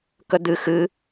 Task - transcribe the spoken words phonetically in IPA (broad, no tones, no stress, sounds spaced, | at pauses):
k ə d̪ ɨ x ɨ